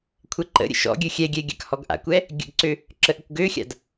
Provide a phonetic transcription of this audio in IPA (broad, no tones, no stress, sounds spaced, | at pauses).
kʷʰ ɛ ǃ ə̰ ɾʲ ə̰ ʃ ɔ̰ ɡʲ ø xʲ ɛ ɡʲ ɛ ɡʲ a̰ k h ɔ ɡ ʔ a̰ kʷ ɛ | ɡʲ ə̰ ɡ ǀ ø | ǁ ə ʔ ə kʷ ɡ ø xʲ a̰ d